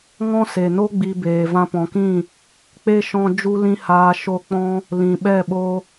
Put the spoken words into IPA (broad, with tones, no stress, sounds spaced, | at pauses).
ŋ ɔ̃˦ s e˨ n o˦ ɡ͡b i˧ b eː˨ v ã˧ p ɔ̃˨ k ĩ˦˨ | k͡p e˦ ʃ ɔ̃˧ d͡ʒ u˦ l ĩ˦ h aː˧ ʃ o˧ k͡p ɔ̃˧ | l ĩ˨ ɓ ɛ˦˨ ɓ o˧